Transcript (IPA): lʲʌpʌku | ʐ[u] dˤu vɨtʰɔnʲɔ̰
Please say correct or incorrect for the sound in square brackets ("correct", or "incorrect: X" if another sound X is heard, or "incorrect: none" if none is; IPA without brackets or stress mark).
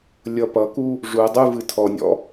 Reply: correct